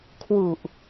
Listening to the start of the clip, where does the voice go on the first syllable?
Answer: low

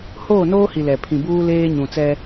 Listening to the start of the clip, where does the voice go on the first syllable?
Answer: falling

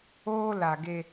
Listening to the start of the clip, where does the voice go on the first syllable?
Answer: high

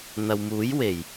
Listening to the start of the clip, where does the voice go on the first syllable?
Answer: low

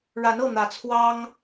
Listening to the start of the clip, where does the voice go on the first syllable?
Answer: rising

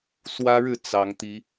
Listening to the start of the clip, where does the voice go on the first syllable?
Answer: high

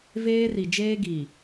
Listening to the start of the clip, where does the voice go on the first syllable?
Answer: high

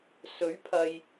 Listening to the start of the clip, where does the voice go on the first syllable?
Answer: rising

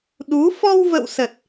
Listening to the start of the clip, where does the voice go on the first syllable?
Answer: rising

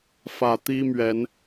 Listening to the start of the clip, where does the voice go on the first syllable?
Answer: low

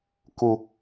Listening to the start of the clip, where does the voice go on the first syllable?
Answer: low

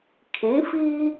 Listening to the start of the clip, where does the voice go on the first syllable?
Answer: rising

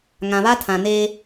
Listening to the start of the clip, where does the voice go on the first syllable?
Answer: low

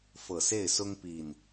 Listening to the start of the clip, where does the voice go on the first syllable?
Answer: low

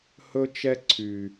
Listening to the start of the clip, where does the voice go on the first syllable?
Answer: high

